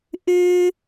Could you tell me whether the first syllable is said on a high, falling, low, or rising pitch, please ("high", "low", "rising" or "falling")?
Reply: high